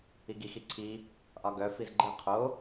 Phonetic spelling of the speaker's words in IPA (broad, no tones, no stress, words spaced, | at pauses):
iɡix iǀʰi | ʔɒɡœ fizɡ͡ǃɨ qʰo